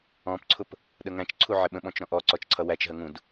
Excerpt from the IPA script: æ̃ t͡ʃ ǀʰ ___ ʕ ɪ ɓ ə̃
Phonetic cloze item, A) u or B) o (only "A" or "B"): A